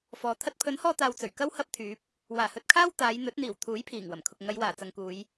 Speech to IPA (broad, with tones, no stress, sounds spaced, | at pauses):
f ɔː˨ t̪ʰ ɐ˧ t̚ pʰ ɵ˨˥ n h ɔː˧ t̪ aː˨ w t͡s ɵ˨˩ ɥ k ɐ˥ w h ɐ˥ p̚ t̪ʰ yː˨˥ p̚ | w aː˨˩ h ɵ˨ t̚ kʰ aː˥ w t̪ aː˨˧ j n̪ ɵ˨˥ t̚ n̪ iː˨˩ w t̪ʰ uː˨˥ j pʰ iː˨˩ ŋ w ɐ˨˩ m kʰ ʊ˨ k̚ ŋ ɐ˨˧ j w aː˨˩ t͡s ɐ˨ ŋ k uː˨˧ j